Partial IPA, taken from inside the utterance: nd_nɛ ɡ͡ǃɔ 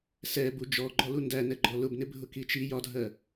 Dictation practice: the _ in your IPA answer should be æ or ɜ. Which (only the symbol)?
æ